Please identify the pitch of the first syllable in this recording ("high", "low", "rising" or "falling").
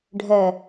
low